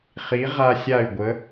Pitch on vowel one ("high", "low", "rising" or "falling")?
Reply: rising